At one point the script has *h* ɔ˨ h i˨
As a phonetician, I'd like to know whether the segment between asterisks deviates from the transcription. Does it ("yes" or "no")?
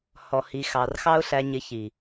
no